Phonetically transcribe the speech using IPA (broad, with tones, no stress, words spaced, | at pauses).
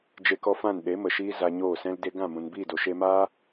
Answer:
d͡ʒe˧kɔ˧fã˦˨n ɗe˨˦mə˨ʃiː˧ za˧ɲoː˦˨ sɛ̃˧lde˧ɡã˦˨ mũ˨nbiː˦˨do˨ ʃeː˧maː˦